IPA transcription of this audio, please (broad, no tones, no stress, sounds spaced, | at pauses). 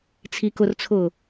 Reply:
t͡sʰ i k ʊ r t͡sʰ ʊː